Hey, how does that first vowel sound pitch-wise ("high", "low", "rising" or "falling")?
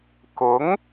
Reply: rising